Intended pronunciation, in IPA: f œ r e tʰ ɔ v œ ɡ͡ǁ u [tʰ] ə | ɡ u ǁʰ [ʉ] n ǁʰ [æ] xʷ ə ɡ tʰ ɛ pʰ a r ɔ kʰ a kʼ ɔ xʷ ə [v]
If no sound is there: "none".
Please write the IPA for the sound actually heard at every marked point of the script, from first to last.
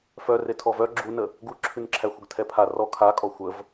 n, ʉ, æ, v

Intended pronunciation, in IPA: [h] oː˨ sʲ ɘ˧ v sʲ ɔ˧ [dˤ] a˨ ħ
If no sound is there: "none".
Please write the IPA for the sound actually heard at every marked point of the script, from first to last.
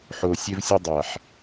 ħ, dˤ

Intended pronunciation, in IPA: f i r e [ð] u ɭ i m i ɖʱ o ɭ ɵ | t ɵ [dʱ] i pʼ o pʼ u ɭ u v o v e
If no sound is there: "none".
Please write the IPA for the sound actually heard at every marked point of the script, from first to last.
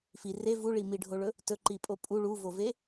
v, ǃ

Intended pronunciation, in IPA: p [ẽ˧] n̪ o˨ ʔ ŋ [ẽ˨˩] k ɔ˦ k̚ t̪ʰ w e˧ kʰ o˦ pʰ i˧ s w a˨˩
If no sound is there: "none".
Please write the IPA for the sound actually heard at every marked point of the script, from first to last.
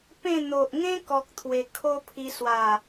ẽ˥˧, ẽ˦

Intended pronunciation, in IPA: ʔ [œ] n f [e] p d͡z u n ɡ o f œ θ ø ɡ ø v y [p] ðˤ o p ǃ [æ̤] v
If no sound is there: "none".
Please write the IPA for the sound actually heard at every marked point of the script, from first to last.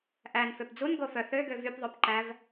æ, ø, p, æ

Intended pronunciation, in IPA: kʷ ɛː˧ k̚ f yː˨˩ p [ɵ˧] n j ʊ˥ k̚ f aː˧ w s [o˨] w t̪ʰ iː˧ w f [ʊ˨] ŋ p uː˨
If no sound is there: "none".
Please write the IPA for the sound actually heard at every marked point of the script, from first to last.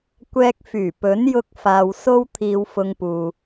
ɵ˨˥, o˥, ʊ˧

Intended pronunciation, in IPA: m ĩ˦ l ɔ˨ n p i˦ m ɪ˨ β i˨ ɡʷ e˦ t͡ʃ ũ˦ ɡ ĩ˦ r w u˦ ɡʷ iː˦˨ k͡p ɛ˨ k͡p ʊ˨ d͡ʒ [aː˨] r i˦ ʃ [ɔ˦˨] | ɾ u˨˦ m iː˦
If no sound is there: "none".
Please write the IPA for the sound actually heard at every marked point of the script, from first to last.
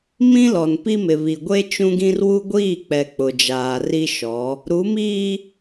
aː˨, ɔ˨˦

